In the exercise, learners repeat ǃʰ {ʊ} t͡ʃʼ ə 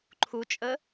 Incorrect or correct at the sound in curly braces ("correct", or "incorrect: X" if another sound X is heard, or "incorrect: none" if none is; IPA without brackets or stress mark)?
incorrect: u